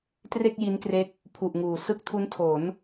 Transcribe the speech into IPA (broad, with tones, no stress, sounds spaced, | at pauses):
t r e˥˩ k̚ j i˦˥ n k r e˦˥ k̚ | pʰ u˨˩ ʔ ŋ uː˩˦ s ɯ˦˥ k̚ tʰ u˦˥ n tʰ o˩˦ n